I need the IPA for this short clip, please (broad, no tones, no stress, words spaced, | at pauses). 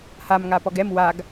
ham ŋapɔɡɛm waɡ